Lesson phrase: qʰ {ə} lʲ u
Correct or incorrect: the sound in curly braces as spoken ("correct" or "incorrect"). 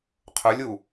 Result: incorrect